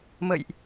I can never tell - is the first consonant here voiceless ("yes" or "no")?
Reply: no